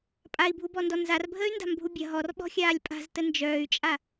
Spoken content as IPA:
pʼ a i̯ bʱ u b ɔ n d ɔ n z a r bʱ əː y̯ n d a̤ m bʱ u bʲ ɐ ɦ ɔ r ɓ ɔ̤ xʲ aː lʲ pʼ a̤ z t ə n d͡ʒ œː y̯ t͡ʃʼ a

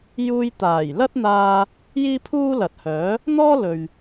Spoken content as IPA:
j uː˧ j t̪ aː˨˩ j l ɐ˥ t̚ n̪ aː˧ | j iː˥ pʰ uː˥ l ɐ˨ t̚ h œː˨˥ | n̪ ɔː˥ l ɵ˨ ɥ

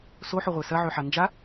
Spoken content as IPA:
s o ħ o ʁʷ e s ɐ ʕ ø ħ a n d͡ʒ a

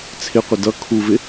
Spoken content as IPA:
t͡sʰ ɪ qʷ ɪ d ʌ kʰ u v ɪ

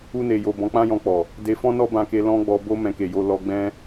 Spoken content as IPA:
u˧ n e˨ j o˨ b ɔ̃˨˦ k͡p ã˦ j ɔ̃˧ k͡p ɔ˨ | d e˨ f ɔ̃˧ n ɔ˧ b ã˧ k e˧ l ɔ̃˦ ɡ͡b ɔ˧ b o˧ m ɛ̃˧ k e˨ j o˧ l ɔ˧ ɡ͡b ɛ̃˧

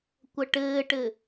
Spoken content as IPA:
kʷ ɐ ʈ ɘː ʈ ɘ

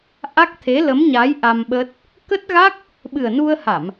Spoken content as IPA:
ʔ a˦˥ k̚ t̪ʰ e˨˦ l ə˨˦ m ɲ a˨˦ j ʔ a˧ m ɓ ə˦˥ t̚ | k ə˦˥ t̚ ɣ a˦˥ k̚ | ɓ ɨ˨˩ ə̯ n u˧ ə̯ h a˧˩˨ m

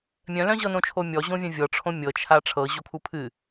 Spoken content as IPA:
mʲ œ̃ l œ̃ ʑ ɤ n õ t͡ʃʰ o mʲ ɔ ʑ õ vʲ œ̃ vʲ ɤ ʈ͡ʂʰ õ mʲ ɤ t͡ʃʰ a ʈ͡ʂʰ ɤ ʑ o kʰ u pʰ ɨ

